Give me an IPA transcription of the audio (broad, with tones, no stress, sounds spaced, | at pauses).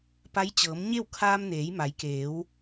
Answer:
p a˧˥ j t͡ɕ ɤː˩˧ m ɲ e˥˨ w kʰ aː˧ m n eː˩˧ j m a˩˧ j k eː˩˧ w